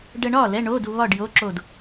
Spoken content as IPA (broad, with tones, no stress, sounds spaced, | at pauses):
ɖ ə˧ ɳ ɒ˥˨ l ɛ˧˥˧ ɳ o˧˥˧ d u˧ β ɒ˥˨ ɖ j o˧˥˧ ǁ o˥˨ d